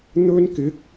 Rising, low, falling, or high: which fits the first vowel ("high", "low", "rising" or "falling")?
high